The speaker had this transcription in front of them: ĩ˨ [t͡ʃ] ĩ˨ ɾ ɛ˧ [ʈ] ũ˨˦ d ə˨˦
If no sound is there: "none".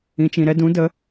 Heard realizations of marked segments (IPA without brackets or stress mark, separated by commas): t͡ʃ, d